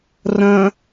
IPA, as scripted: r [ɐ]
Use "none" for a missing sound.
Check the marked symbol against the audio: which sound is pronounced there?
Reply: ɐ̃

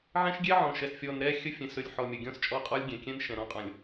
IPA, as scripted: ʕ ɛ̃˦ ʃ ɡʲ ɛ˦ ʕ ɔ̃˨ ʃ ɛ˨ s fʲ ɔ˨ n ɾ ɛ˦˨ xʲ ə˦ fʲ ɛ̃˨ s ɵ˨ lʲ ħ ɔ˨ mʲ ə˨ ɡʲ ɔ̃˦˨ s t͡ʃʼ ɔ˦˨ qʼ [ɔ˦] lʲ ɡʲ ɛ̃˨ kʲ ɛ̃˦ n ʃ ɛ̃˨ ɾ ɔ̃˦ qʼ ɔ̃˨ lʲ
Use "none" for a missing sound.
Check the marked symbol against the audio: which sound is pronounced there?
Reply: ɔ˦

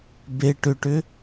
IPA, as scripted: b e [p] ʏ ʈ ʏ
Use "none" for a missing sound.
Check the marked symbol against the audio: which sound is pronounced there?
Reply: ʈ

